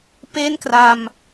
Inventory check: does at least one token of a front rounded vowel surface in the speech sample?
no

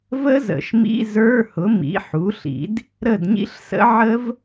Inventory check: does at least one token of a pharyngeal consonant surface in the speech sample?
yes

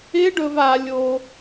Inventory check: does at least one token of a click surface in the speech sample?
no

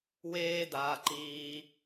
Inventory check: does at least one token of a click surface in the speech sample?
yes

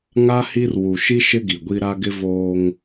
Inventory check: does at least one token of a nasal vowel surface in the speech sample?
no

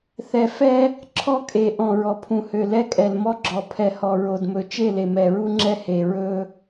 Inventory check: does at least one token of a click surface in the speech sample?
yes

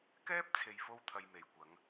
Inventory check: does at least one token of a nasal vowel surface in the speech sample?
no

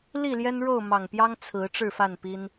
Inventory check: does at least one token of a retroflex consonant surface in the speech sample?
yes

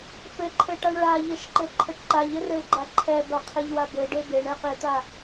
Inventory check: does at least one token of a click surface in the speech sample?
yes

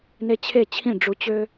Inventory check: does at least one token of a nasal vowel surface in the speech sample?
yes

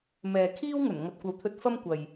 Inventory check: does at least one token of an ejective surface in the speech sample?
no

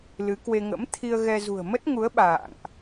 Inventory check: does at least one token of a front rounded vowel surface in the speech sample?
no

